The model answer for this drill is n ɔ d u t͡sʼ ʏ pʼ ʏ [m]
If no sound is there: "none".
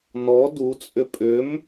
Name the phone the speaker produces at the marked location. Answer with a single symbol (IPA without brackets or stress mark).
m